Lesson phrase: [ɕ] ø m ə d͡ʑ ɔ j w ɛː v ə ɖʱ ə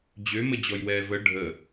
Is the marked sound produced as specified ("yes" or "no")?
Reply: no